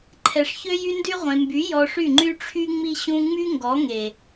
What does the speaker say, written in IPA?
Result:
ǃʰɛ˨ʂçø˧jy˧ndy˧ ʁʷẽ˨mby˨˦ jɔ˧ʂy˦˨ ŋ͡ǃy˦ʈ͡ʂʰy˦ŋ͡mi˦ ɕũ˧ ŋ͡my˦ŋɡɔ˨˦ŋe˨

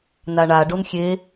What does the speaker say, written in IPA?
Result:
naɳa ɖonxʲe

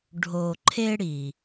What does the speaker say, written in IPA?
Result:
ɖʱo˧ǃʰe˥ ɽi˧

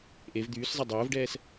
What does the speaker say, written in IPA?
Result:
ʔev d̪yːszˤɛ dˤʊːvɖɛːs

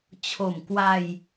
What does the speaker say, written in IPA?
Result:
t͡ɕʰo˨˩mkwa˧j

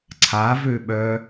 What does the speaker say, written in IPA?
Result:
ǀʰavøɓœ

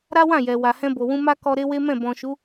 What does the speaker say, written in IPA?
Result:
ɾa˦wã˦˨jɛ˨ wa˨hɛ̃˧bo˨wũ˧ ma˦kɔ˧ ɾe˦we˦mɛ̃˦˨ bɔ̃˨ʃu˨˦

